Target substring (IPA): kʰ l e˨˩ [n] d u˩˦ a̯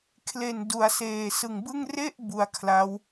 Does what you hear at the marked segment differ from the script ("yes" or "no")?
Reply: no